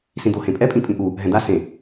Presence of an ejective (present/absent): present